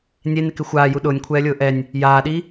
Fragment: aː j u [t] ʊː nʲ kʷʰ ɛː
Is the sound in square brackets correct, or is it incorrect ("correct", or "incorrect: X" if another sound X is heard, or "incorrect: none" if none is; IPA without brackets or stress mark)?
incorrect: ɗ